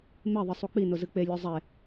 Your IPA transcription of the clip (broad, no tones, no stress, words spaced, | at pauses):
meðˤɨ sˤuk͡pinʊ zɨk͡pelʲo zˤe